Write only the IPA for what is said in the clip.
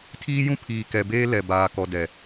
tʰ iː˦ j ũ˦ pʰ iː˨ k ɛ˨ b eː˦ l ɛ˨ b aː˨ k ɔ˨ d ɛ˨

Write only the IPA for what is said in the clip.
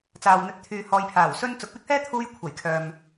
t͡s aː˨ w n̪ ɵ˨˥ t̚ t̪ʰ yː˨ h ɔː˨˧ j pʰ aː˨˩ w s ɵ˧ n t͡s ʊ˨ k̚ w ɪ˥ k̚ h ɛː˥ t̪ʰ uː˧ j kʷʰ ɐ˨˩ j kʰ œː˨ m

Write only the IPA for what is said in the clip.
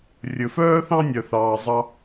rʲ ɵ˨ f œː˦ θ ɑ̃˦ nʲ œ˨ θ ɑː˨ zˤ ɑ˦

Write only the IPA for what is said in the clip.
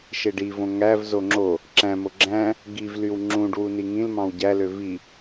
ʃ e ɖ i v õ ŋ æ v z o ŋ͡ǁ o | ǁ æ̃ m o ɡ͡ǁ æ̃ | ɡ i v l y w ŋ͡ǁ ũ ɖ w u n i ŋ ĩ l m ɑ̃ w ɟ æ l ø v i

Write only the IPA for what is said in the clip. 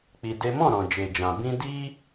k͡p i˧ d e˦ m ɔ̃˦˨ ɾ ɔ̃˨ d͡ʒ e˨ d͡ʒ ã˨ b ĩ˧ d i˦

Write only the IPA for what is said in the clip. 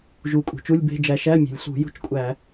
ʒ u˨˩ kʼ ṳ˨˩ t͡ʃ u˧˥˧ lʲ b e̤˧˥˧ d͡ʒ æ˧ ʃ æ˧˥˧ mʲ e̤˨˩ lʲ ɬ ṳ˧˩˧ j ṳ˧˥˧ t͡ʃ kʷʼ æ˧˩˧

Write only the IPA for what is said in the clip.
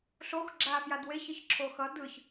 ɬ o x ɡ͡ǁ aː f j a d w e ç ɯ ç ǁʰ oː x ʌ d ɯ ç

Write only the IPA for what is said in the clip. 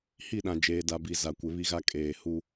h i˦˨ ɗ ã˨ d͡ʒ eː˨ d a˨ b i˨ z a˨ kʷ ɪ˨˦ β i˦ ɣ a˦ kʼ eː˨ h u˦

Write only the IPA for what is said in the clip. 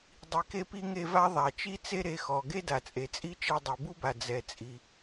dˤ i˩ k e˧ p i˧ ŋ e˧ v a˥ ðˤ a˩ t͡ʃ i˥ t͡s e˥ ɾ e˧ x ɔ˩ ɡ e˥ d a˩ t͡sʼ e˩ t͡sʼ i˥ t͡ʃ ɛ˧ dˤ i˩ b u˥ b a˩ d͡z ɛ˩ t͡sʼ i˩

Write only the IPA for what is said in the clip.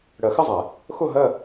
ɽ ɜ˨˩˦ x ɪ˥˧ zˤ ɛ˨˩˦ | x ʊ˥˧ ɦ ɜ˥˧

